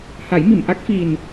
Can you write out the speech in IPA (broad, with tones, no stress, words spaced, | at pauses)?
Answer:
ha˨˩˦jmi˨˩˨mʔa˦˥k̚ fi˨˩n